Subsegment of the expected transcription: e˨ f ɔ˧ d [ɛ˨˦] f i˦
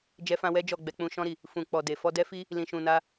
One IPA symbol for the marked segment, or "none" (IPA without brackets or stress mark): ɛ˦